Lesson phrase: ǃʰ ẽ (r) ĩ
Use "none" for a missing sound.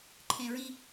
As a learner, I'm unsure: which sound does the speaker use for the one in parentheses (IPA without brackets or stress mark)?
ɹ